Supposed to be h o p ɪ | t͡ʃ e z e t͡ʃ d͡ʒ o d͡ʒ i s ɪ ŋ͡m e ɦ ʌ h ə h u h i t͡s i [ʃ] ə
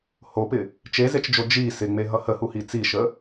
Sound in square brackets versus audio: correct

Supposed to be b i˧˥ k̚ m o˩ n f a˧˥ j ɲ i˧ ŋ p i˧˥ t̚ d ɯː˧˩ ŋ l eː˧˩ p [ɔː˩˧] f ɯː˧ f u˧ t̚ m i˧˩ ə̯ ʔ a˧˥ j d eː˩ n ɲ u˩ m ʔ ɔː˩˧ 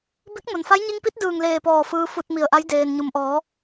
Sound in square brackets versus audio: incorrect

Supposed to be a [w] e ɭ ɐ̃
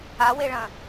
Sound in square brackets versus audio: correct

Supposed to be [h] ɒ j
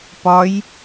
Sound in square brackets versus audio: incorrect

